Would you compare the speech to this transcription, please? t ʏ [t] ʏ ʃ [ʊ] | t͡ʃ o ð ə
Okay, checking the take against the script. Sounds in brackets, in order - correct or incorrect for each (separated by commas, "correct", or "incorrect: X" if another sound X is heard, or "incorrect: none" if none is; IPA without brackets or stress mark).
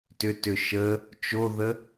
correct, incorrect: ə